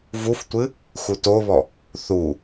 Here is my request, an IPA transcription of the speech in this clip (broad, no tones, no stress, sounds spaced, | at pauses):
v u f tʷ ɨ | x u t o β ɔ | θ u